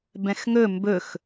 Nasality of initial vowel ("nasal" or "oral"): nasal